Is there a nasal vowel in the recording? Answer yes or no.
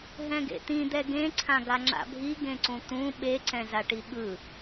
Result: yes